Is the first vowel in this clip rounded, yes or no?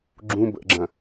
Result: yes